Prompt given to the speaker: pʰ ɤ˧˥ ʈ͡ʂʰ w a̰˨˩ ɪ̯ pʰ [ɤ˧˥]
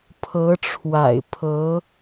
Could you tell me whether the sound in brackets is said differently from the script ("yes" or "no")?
no